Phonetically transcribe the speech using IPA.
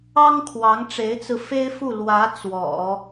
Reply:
ɑ˥ ŋ kʰ w ɑ˧˥ ŋ ʈ͡ʂ e˧˥ ɪ̯ t͡s ɹ̩˧ f e˥ ɪ̯ f u˥˩ l w ä˧˥ t͡s w ɔ̰˨˩˦

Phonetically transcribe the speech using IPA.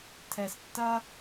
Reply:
tʰ ɛ˧ s tː ɐ˦

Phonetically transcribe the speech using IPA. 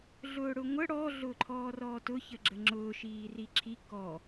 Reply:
ɮ ʊː ɽ ʊ ŋʷ ə ɽ ɔ ɮ ʊː ǃʰ ɔː r ɔː t ʊ ç ə ɡ͡ǁ ə ŋ͡ǁ ʊː ʃ iː r i ǁʰ i k ɔ

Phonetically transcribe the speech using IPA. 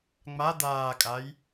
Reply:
ŋ͡m a d̪ aː kʼ a j

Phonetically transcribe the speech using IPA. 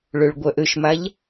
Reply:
ɭ ø ɭ ɡʷ œ ʔ ø ʃ m a ʎ

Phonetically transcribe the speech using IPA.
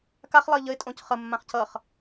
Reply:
k a χ lˠ ə ɪ̯ ʎ ə ɪ̯ tʼ õ c χ ə mː ã χ c ʌ χ

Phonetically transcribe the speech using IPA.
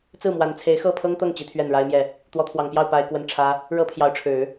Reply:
t͡s ɹ̩˥˩ m w a˧˥ n t͡sʰ e˧˥ ɪ̯ x ɤ˥˩ pʰ ɤ˥ ŋ t̪ ɤ˥˩ ŋ t͡ɕ i˧˥ t̪ʰ ɥ ɛ˥˩ n ɻ a˥ ɪ̯ m j ɛ˥˩ | t̪ w ɔ˧˥ t̪ʰ w ɑ˨˩ ŋ p j ɑ˥˩ ʊ̯ p a˥ ɪ̯ k w ə˥ n ʈ͡ʂʰ ä˥ | ɻ ɤ˥ pʰ j ɑ˧˥ ʊ̯ ʈ͡ʂʰ ɻ̩˨˩˦

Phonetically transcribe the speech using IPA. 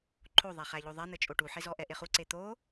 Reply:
ǃʰ o ðˤ æ χ æ ʎ o ðˤ æ n̪ ɘ t͡ʃʼ o ʈ u ħ e z ɔ ʔ ɛ ʔ e χ u ǀ e t̪ o

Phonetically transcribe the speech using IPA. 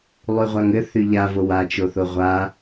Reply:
lˠ y ʁʷ a ŋ ɘ θ y ʎ a v o w a t͡ʃ o θ o ʁʷ a

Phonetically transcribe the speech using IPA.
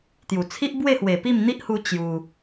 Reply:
t̪ j u˨˩ t͡sʰ i˦ ʔ b w e˥˧ h w e˨˩ p i˥˧ m n̪ i˦ ʔ h u˧ t͡ɕ j u˧

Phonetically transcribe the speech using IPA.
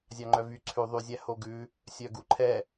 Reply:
zʲ ɑ ŋ͡ǃ œ v y ǀʰ ʉ ðˤ y zʲ æ h o ɡ ʉ | sʲ œ ɡ u ǃʰ ɛ

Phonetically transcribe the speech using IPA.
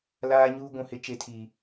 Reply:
l aː˦ ɲ uː˦ ɡʷ ũ˨ h ɪ˨˦ t͡ʃ e˨˦ tʰ i˨

